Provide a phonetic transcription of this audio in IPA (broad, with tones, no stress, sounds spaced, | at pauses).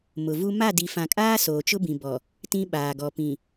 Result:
m ʊ˨ v u˦ m a˦˨ d i˨ f ã˨ kʼ aː˦ s oː˨ t͡ʃ ʊ˦ b ĩ˨ b ɔ˨ | t ĩ˦ ɓ aː˨ ɡ ɔ˨ p ĩ˨